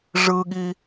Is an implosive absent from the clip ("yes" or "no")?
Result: no